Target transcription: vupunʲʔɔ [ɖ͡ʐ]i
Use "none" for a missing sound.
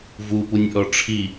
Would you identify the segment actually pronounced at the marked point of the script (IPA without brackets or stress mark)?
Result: ʈ͡ʂʰ